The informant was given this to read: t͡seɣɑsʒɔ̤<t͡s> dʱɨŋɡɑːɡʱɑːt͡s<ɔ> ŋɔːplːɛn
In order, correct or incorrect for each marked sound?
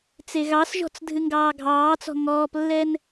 correct, incorrect: ɔ̤

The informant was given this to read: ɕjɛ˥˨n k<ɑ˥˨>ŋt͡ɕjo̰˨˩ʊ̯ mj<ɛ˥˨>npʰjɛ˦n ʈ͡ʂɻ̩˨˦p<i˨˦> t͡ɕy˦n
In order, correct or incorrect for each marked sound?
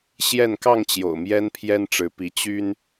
correct, incorrect: ɛ˦, correct

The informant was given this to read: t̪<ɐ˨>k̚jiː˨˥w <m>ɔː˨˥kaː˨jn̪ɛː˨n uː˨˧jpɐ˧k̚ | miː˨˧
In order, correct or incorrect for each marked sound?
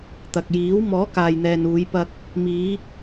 correct, correct

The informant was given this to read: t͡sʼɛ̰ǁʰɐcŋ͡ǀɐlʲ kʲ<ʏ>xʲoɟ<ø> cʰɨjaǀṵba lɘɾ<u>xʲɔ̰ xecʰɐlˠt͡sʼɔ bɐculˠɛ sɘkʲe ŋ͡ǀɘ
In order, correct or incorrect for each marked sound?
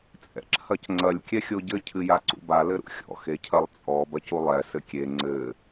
incorrect: ɛ, incorrect: ɘ, incorrect: ṵ

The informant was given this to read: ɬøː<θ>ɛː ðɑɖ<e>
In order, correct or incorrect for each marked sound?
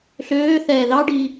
correct, incorrect: i

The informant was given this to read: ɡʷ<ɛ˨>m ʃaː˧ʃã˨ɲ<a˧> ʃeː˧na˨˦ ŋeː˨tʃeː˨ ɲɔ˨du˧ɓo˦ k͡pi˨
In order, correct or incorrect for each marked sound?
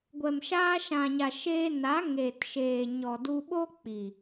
correct, incorrect: a˨

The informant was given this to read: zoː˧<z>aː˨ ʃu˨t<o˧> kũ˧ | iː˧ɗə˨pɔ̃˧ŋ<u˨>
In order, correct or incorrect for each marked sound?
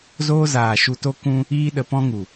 correct, correct, correct

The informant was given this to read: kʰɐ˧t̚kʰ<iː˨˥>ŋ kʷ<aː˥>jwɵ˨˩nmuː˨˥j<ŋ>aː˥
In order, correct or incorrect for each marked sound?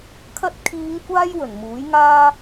incorrect: iː˨˧, correct, correct

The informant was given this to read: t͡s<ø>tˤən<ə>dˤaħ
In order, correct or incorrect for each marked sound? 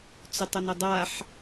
incorrect: ɵ, correct

